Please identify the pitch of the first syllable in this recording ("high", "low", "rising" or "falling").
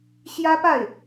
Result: high